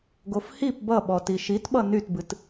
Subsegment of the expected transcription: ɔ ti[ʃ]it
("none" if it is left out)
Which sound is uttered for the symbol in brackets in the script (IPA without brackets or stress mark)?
ʃ